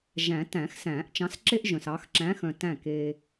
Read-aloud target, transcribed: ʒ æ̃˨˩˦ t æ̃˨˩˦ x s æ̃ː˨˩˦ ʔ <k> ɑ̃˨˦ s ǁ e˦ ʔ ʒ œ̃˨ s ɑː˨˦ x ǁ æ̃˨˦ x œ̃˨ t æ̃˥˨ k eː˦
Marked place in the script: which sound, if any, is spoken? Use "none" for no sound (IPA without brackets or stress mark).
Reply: t͡ʃ